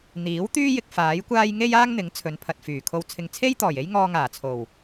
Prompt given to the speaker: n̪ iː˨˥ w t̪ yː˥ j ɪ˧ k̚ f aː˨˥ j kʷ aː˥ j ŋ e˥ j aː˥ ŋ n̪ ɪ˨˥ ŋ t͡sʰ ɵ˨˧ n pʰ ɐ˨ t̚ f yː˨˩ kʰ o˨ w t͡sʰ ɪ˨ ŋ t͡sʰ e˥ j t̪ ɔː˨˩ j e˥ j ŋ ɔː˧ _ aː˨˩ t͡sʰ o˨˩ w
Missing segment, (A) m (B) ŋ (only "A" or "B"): B